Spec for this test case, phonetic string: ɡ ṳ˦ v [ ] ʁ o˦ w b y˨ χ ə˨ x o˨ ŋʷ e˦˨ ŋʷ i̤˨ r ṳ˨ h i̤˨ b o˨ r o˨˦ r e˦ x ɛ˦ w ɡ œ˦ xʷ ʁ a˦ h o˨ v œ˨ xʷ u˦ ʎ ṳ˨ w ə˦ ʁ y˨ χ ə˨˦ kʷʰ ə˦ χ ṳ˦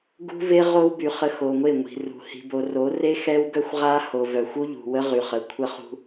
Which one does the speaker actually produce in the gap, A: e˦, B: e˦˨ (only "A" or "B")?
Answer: A